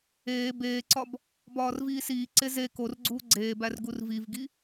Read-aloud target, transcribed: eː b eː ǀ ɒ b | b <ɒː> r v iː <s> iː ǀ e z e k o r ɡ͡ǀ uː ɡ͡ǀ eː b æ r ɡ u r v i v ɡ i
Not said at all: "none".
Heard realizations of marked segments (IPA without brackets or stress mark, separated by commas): ɒː, s